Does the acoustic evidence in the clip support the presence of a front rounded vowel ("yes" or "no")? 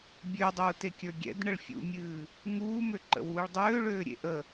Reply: yes